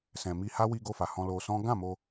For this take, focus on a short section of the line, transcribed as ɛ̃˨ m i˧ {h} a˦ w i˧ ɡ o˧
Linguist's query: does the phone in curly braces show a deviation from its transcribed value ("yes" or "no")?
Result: no